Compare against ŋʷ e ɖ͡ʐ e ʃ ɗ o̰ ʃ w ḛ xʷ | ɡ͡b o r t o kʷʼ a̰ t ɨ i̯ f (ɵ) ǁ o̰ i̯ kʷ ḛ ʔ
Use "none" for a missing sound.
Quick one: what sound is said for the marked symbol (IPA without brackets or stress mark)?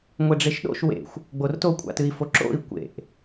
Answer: o